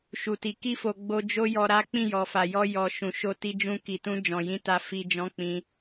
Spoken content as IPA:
ʃ u˨ t i˨ k i˧ f o˨ ɡ͡b o˧ d͡ʒ o˦ j ɔ˧ ɾ a˦ k͡p ĩ˦˨ j ɔ˨ f a˨ j ɔ˧ j ɔ˨ ʃ ũ˨ ʃ o˧ t i˧ d͡ʒ ũ˧ k i˨ t ũ˧ d͡ʒ ɔ̃˨ j ĩ˧ t a˧ f i˧ d͡ʒ ɔ̃˦ k͡p ĩ˧

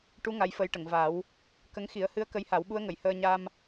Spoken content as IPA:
ʈ u˧˥ ŋ a˧˥ j f ə˧˥ j ʈ ə˨˩˨ ŋ v a˨˩˦ w | k ə˧˥ ŋ x i˨˩˦ ə̯ h ɨ˧˥ ə̯ k ə˧˥ j h a˨˩˦ w ɓ u˧˥ ə̯ ŋ ə˨˩˨ j h əː˧ ɲ a˧ m

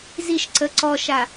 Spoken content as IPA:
z i ʃ ǀ ə ǀ ɔ ʃ a

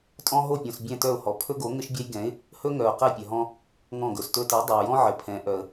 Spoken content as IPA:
tʼ ɔ̃˥ ɦ o˦˨ pʲ õ˨ s bʲ ɛ̃˦˨ t œ˦˨ ʊ̯ h ɔ˨ pʰ ɵ˥ ɡ o˨˥ ŋ ɘ˥ ʃ bʲ ɛ˥ j ɡ ɛ̃˨˥ ɪ̯ | h ɵ˥ ŋ œ˨ ʊ̯ q ɛ˦˨ pʲ œ˨ ɦ ɔ̃˥ | ŋ ɔ̃˦˨ ɡ ɵ˨ s t ɵ˥ t ɛ˨˥ dˤ ɵ˨ ʊ̯ j ɔ̃˥ ʕ ɘ˨ pʰ ɛ̃˨˥ ʔ œ˨ ə̯

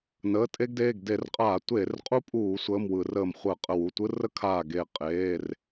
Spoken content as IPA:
n əː˩˧˩ tʼ e˥ ɡ d eː˩˧˩ ɡ d e˧˩˧ r qʼ aː˧˩˧ tʷ eː˧˩˧ r qʼ u˥ pʼ uː˧˩˧ sʷ əː˩˧˩ m w ɯ˧˩˧ r əː˧˩ m χʷ əː˧˩˧ qʼ ə˧˩ w u˩˧˩ tʷ ɯ˥ r ə˥ kʰ aː˧˩ ɡ e˧˩ qʼ eː˩˧˩ r

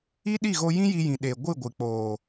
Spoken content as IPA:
i˦ ɗ i˦˨ ɣ o˧ j ĩ˦ j i˧ j ĩ˨ ɗ e˨ ɡʷ ɨ˦˨ ɡʷ ɨ˨ k͡p oː˨

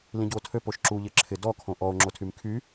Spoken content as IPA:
l ĩ ɟ u o̯ tʰ ø p o ʃ ǁ u ʎ ɪ ǁʰ ɪ d ɔ kʰ õ ʔ ɔ o̯ ŋ͡ǁ o tʰ y m kʰ y

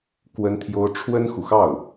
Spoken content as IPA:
k w ə˥ n t̪ʰ j o˥ ʊ̯ ʈ͡ʂʰ w ə˥ n x u˨ x ɑ˥˩ ʊ̯

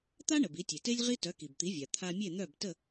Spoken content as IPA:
t̪ a˥ ɳ ə˩ b i˩˥ tʲ e˩ t e˥ lʲ ʁ i˥ t œ˩˥ k i˩ b t̪ i˩˥ vʲ a˩ t̪ʰ a˧ mʲ e˥˩ n̪ œ˥˩ b t ə˥˩

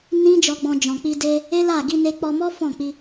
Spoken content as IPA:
n ĩ˦ d͡ʒ ɔ˧ ɡ͡b ɔ̃˧ d͡ʒ ɔ̃˨ k͡p i˧ d e˧ | e˦ l a˦˨ ɡ i˧ n e˧ k͡p ɔ˧ m ɔ˦ f ɔ̃˦˨ k͡p i˧

